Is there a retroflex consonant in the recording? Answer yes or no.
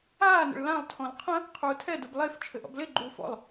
yes